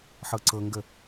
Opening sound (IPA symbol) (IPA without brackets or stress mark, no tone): ħ